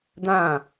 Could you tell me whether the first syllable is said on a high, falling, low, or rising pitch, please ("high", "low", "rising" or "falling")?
falling